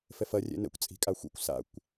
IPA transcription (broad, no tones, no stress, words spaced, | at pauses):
fɛfɐ rʲɛ̰nɛ̰kʷ t͡sʼi̤kʼaxʷḭkʷ sa̰kʷ